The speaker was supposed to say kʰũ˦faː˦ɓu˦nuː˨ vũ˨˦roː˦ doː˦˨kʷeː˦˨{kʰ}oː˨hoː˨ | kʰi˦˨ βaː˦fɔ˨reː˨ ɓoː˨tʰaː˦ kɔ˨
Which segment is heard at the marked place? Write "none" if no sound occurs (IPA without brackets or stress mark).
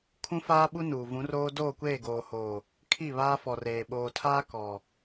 ɡ